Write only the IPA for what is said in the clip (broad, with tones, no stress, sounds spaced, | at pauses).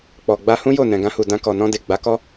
k͡p ɔ˨ ɡ͡b a˧ h ũ˦ j o˦˨ n ɛ̃˨ ɡ ã˧ h u˨ d ã˧ k ɔ˨ n ɔ̃˧ d e˨ ɡ͡b a˨˦ k ɔ˦